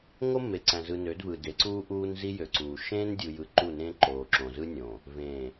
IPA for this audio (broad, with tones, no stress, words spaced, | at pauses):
ŋo˦mːe˨ǀæ̃˨ zɯ˨nø˨˦dvɯ˨ de˨˦ǀuː˦ʔuː˦n zi˦jø˨ǀuː˨ ʃẽː˦ndʲu˨jɯ˨ ǃu˦˨nẽ˦ǃoː˨ǁõ˨ zɯ˦nʲõ˨ | vẽ˨